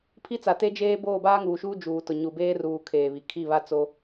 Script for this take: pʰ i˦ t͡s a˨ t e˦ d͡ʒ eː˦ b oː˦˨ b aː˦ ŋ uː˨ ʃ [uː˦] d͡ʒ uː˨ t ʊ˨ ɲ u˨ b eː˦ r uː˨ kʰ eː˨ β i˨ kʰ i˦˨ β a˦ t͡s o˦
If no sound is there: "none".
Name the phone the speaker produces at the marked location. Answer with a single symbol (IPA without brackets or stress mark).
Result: uː˦